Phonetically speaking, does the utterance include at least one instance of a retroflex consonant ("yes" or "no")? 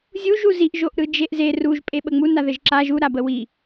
no